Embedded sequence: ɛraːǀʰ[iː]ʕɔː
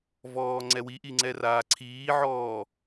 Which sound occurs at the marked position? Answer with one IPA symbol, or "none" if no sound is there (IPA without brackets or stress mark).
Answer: iː